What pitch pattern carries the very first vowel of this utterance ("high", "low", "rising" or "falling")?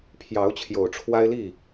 rising